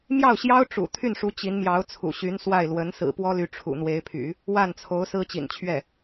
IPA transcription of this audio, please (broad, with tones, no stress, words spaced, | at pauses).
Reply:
mjɑ˥˩ʊ̯ɕjɑ˥ʊ̯ ʈ͡ʂṵ˨˩ t̪ʰy˥˩nʂu˧˥ t͡ɕi˧˥nmjɑ˧˥ʊ̯t͡sʰṵ˨˩ ɕy˧˥nswa˥˩ɪ̯ lwə˧˥n sɹ̩˨˩pwɔ˥ly˧˥ ʈ͡ʂʰṵ˨˩n̪we˧˥ɪ̯pʰy̰˨˩˦ | wa˥˩nt͡sʰo˧˥ʊ̯ sɹ̩˥t͡ɕḭ˨˩n t͡ɕʰɥɛ˥˩